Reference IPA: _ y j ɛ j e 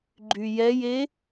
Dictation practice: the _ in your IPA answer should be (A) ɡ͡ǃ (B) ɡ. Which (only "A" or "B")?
A